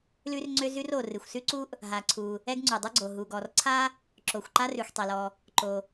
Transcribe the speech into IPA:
l ʉ˥ r ŋ͡ǀ ø˥ z ʉ˥ r o˩ r ɨ˩ xʷ s ʉ˥ ǀ u˥ ʔ | ɦ a˩ ǀʰ u˩ | ɛ˥ ɡ ŋ͡ǀ u˩ dˤ u˥ ɡ͡ǀ o˩ ɦ u˩ ɡ ɔ˩ r ǀʰ a˥ | ǁ o˩ xʷ ǃ a˥ r ʉ˩ xʷ tˤ ɛ˩ l ɔ˩ | ǃ o˩

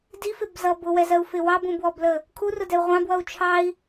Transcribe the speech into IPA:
d i f ɪ b z ʌ b ʊ w ɛ z ɜ u̯ f ɪ w ɑ b ũ b w ɔ b l əː | kʰ u r ʊ d ɛ u̯ ʁʷ ɑ̃ b w ʌ u̯ t͡ʃʰ ɑ i̯

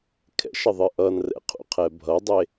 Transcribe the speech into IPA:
kʰ ɛ̰ ʃ ə ðˤ ɨ ʔ ʌ n r ɛ̰ qʰ ṵ qʰ ɛ bʱ ʌ dˤ e

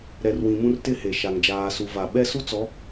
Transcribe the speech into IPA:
ɾ ɛ˨ r w ĩ˨ m ũ˦ r t ɪ˦ h e˨ ʃ a˨ ŋ d͡ʒ aː˨ s u˨ v a˨ ɓ ɛ˦ s u˦ t͡s ɔ˨˦

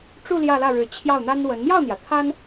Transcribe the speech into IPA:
ʈ͡ʂ u˥˧ l j ä˥˧ l ä˥˩ ɻ ɻ̩˧˥ t͡ɕʰ j ɑ˥˩ ʊ̯ n̪ a˥ n w ə˧˥ n m j ɑ˥˩ ʊ̯ n̪ j ä˩ t̪ʰ a˥ n

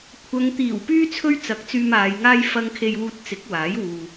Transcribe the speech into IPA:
kʷʰ ɐ˨ ŋ t̪ iː˨˩ w p yː˥ t͡sʰ ɵ˥ ɥ t͡s ɐ˨˥ k̚ t͡s yː˧ m aː˨˧ j ŋ aː˥ j f ɐ˥ ŋ kʰ e˧ j w uː˧ t̚ t͡s ɪ˨˥ k̚ w aː˨˥ j w uː˧

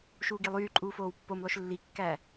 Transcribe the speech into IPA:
ʃ uː ɡ i lˠ yː ǃʼ uː f oː w pː o m lˠ ø ʃ lː i kː æ

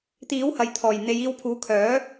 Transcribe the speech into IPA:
t̪ iː˨˥ w h ɐ˨ j t̪ʰ ɔː˨˩ j n̪ e˨˧ j iː˧ w pʰ uː˨˥ kʰ œː˨˥

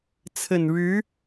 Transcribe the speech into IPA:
t͡sʰ ə˨˩ n ɻ ɻ̩˧˥

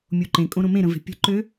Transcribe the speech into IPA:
mʲ o ǃ ẽ kʼ õ ɾ õ m ẽ ɾ ə̃ v e̤ pʲ ə̤ ǃ ø

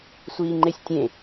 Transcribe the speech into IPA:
sʷ iː ŋ͡ǃ e sʲ tʲ ẽ

